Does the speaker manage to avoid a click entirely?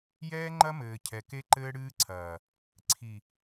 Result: no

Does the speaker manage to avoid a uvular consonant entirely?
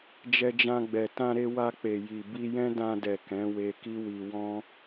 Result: yes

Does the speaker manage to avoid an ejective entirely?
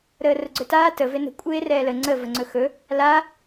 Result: no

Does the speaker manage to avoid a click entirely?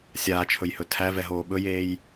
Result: yes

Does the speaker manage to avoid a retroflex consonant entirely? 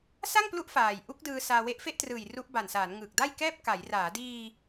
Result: yes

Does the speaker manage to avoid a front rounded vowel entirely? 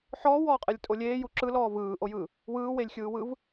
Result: yes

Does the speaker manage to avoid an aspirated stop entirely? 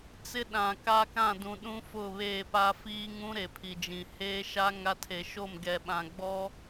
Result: no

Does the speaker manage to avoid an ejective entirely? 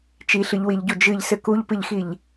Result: yes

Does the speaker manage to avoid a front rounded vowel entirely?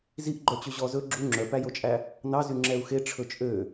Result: no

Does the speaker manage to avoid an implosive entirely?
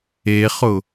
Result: yes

